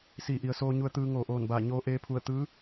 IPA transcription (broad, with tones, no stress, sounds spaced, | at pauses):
s iː˧˩ ʔ i˩˧ ə̯ s oː˧ ɲ u˧ ə̯ t̪ ɯː˧ ŋ oː˧˩ ʔ oː˧˩ n b aː˧˩ ɲ oː˧ ʔ eː˧ pʰ u˧˩ ə̯ t̪ ɯː˧˥